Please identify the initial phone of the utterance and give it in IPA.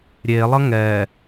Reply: ɾʲ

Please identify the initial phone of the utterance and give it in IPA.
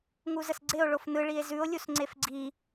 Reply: ŋ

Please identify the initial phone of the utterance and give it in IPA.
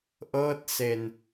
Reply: ʔ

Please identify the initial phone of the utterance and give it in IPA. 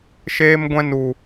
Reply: ʃ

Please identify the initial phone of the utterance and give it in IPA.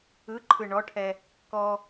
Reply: ɯ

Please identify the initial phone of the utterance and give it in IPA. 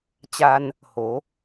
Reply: t͡ɕ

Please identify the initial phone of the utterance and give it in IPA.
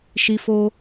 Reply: ʃ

